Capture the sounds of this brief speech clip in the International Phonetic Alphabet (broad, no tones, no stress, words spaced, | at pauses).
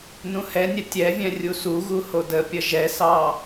nũhɛnʲɛ tʲɛvʲɛ̃ rʲusuɣu hodəpʲə ʒɛsɑ